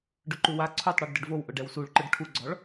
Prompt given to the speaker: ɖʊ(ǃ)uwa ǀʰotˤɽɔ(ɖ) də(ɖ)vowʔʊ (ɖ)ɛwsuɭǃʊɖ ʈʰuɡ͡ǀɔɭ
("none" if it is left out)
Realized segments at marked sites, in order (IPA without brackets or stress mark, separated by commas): ǃ, ɖ, ɖ, ɖ